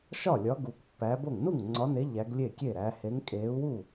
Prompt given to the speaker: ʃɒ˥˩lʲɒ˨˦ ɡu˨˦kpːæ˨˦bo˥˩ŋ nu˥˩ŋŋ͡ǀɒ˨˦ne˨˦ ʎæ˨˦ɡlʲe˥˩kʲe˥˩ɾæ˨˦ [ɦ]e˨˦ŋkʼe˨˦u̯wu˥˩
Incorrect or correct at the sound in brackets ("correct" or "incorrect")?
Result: incorrect